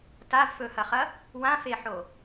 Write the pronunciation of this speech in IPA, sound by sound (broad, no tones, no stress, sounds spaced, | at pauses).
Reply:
t a v f ɵ h ɐ χ ɐ | w ã f e ħ o